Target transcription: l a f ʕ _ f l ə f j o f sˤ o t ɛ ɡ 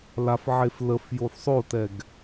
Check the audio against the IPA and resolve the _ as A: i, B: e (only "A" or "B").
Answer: B